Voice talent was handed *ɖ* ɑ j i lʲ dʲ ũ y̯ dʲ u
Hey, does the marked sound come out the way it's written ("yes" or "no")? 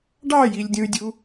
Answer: yes